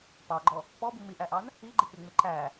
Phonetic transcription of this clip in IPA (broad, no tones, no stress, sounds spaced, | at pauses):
p ɑ ɡ͡ǃ ɔ | p ɔ b u m i ʔ æ ʔ ɑ n | i ɡ͡ǃ ɪ k͡p ɪ ŋ͡m ɪ ǃ æ